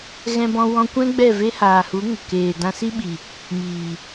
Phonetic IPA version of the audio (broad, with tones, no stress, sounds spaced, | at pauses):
ɣ ɛ̃˧ b ɔ̃˧ w ɔ̃˧ kʷ ɛ̃˦ ɡ͡b ɛ˦˨ v e˦ h aː˨ h u˨˦ ŋ ə˨ k eː˨ d ã˧ s i˦ ɓ i˨ | m iː˨